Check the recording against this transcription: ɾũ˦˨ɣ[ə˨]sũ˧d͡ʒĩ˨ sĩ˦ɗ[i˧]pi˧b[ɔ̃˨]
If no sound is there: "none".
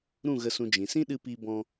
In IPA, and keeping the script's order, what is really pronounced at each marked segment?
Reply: ə˧, ɨ˧, ɔ̃˧

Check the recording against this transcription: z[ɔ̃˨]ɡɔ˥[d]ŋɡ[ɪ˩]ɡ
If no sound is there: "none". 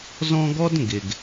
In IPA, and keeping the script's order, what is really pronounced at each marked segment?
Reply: ɔ̃˦, d, ɪ˩

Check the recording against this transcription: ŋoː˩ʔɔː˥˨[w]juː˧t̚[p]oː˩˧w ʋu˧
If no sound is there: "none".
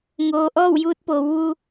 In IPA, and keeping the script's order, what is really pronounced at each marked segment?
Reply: w, p

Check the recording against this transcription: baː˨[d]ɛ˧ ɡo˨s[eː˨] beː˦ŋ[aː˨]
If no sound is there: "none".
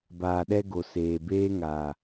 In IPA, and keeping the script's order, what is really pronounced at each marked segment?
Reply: ɗ, eː˨, aː˨

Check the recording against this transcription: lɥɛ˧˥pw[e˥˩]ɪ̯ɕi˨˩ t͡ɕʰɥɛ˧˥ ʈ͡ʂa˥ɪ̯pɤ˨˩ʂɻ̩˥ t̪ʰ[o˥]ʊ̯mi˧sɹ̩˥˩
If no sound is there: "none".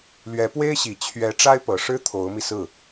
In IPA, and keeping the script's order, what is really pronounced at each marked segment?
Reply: e˥, o˧˥

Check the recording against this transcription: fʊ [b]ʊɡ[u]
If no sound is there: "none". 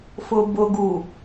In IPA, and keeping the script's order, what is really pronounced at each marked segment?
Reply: b, u

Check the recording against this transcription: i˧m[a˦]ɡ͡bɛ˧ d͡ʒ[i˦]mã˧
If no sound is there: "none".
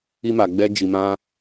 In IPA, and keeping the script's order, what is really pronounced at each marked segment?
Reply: a˨, i˨

